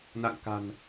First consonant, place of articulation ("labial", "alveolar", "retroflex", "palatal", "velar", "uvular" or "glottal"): alveolar